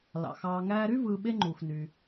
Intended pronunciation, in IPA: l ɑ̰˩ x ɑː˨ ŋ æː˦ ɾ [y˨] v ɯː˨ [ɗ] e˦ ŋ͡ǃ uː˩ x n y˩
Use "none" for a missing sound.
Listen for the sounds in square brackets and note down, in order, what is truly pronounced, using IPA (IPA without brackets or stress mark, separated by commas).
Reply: y˥, ɓ